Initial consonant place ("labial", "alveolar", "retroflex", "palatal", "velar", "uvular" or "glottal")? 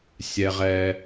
alveolar